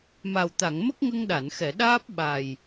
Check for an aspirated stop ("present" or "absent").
absent